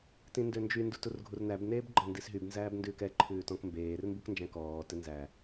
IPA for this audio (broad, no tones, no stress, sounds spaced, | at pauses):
t ĩ n d ø n d͡ʒ y n d u t u r ɡʱ u r n æ b n eː b ɡ͡ǃ ɔ n d i s ɦ y b n z æː b n d ʉː k ɛ ǃʰ ʉː t ɔ̃ k m b eː r m b u k n d͡ʒ æ̃ k ɔː t ɛ n z æ